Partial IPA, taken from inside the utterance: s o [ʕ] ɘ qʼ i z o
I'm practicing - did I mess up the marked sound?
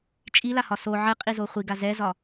no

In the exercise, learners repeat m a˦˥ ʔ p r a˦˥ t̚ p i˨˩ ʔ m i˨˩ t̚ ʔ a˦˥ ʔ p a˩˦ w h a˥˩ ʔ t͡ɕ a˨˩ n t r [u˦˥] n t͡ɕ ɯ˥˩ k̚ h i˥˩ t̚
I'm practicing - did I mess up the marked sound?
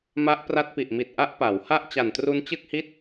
no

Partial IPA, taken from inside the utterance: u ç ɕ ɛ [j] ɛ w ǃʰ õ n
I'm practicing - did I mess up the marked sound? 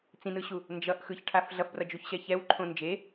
yes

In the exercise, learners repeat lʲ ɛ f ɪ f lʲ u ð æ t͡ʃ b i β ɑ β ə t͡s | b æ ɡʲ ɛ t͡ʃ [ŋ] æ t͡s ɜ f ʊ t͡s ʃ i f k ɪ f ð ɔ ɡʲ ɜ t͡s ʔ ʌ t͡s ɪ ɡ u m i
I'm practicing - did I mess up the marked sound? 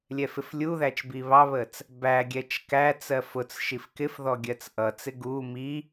yes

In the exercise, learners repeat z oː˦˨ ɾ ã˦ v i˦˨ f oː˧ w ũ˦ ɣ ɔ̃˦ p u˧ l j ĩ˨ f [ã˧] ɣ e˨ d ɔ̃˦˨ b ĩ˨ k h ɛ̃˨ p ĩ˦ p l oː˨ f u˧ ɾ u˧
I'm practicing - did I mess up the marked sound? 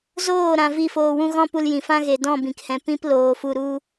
yes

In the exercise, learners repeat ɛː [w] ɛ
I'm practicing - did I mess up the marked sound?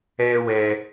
no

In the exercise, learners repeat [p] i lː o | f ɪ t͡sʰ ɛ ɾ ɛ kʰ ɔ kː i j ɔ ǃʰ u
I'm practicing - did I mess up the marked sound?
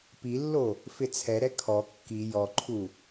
no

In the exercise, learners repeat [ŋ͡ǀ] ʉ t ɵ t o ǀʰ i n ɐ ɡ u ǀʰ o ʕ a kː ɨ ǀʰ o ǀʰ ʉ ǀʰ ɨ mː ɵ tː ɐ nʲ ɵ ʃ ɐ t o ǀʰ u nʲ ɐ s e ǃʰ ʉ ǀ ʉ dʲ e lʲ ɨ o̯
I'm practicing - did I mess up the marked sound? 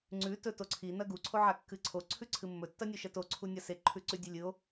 no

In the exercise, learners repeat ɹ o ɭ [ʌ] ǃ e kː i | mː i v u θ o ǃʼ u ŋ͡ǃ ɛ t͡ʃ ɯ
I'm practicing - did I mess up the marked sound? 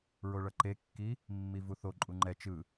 no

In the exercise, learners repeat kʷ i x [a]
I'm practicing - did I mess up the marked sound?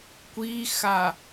no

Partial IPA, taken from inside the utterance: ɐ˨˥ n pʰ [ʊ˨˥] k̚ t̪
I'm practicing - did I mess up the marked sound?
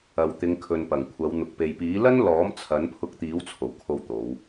yes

